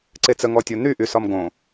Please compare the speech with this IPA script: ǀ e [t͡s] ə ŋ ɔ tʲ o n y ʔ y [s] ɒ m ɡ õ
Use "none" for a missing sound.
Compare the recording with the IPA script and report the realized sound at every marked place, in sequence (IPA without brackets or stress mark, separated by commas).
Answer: t͡s, s